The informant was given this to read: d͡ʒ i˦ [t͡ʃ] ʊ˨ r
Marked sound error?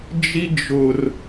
yes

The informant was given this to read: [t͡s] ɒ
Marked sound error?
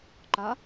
yes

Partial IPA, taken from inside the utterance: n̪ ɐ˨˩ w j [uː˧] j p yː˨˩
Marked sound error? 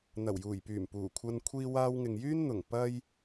yes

